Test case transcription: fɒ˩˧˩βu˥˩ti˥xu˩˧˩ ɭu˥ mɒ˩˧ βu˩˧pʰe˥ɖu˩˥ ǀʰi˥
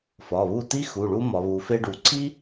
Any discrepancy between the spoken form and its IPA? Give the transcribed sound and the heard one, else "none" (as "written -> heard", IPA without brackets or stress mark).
pʰ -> f